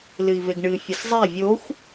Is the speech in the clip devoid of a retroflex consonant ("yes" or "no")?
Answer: no